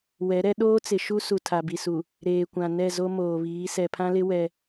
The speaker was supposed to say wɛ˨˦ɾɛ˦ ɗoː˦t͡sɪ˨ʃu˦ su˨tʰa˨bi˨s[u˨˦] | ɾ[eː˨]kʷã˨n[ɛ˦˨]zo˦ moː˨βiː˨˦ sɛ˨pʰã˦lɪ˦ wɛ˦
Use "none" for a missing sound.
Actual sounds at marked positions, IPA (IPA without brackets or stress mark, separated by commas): u˨, eː˨, ɛ˦˨